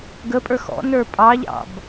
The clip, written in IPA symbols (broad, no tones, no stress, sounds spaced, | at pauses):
ɡ ə pʼ ə˞ x ɔ̰ n ə˞ pʼ ɑ ʎ ɑ̰ b